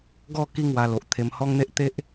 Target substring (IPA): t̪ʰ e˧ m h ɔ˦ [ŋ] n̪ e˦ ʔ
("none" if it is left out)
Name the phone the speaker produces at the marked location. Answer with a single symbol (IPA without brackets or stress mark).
ŋ